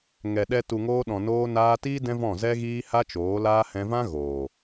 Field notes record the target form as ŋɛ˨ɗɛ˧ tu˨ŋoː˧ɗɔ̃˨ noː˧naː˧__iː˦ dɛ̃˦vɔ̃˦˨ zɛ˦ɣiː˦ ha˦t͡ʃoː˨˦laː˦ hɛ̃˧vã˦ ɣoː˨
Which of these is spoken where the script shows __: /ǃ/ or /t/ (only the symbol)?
t